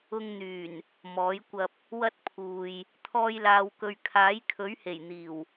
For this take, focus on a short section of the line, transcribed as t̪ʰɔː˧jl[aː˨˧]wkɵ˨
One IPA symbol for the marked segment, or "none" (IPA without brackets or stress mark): aː˨